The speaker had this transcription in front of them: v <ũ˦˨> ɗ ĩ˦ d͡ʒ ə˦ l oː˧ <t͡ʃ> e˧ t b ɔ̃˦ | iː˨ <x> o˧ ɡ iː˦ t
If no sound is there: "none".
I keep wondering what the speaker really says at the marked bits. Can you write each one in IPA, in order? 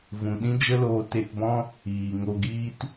ũ˨, t, ŋ

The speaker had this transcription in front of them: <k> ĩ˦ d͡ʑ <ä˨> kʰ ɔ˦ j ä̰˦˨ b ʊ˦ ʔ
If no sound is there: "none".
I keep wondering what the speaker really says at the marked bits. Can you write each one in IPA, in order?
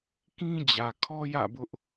k, ä˨

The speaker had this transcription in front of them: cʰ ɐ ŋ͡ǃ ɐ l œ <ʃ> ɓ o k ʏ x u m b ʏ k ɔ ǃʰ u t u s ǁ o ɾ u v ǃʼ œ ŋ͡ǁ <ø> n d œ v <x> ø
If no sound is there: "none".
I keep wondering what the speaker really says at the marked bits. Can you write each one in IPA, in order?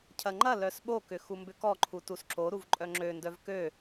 s, ø, k

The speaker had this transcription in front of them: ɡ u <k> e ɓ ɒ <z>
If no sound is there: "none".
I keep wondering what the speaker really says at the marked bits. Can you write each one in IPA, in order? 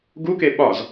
k, z

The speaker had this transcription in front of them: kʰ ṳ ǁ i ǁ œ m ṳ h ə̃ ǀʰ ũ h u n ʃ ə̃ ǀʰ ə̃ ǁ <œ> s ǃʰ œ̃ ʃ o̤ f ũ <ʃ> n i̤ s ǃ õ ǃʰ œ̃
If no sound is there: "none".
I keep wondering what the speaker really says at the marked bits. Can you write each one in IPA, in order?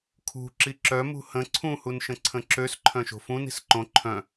ø, none

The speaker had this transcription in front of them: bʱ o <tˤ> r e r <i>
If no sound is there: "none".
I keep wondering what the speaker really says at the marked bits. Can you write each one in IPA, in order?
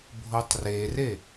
tˤ, e

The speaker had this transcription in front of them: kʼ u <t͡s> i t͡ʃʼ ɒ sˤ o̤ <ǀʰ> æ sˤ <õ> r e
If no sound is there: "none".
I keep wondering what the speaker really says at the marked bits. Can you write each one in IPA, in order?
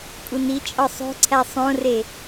n, ǀʰ, õ

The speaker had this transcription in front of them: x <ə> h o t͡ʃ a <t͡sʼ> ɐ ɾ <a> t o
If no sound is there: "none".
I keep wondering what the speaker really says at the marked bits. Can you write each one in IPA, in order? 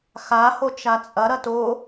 a, t͡sʼ, ɐ

